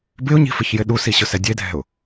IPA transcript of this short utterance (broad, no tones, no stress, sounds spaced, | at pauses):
b ɪ ʊ̯ ɲ i̤ f ɪ ç j ɪ ɗ u s i ɕ ʊ s ɛ dʲ e dʱ ɛ̤ ʊ̯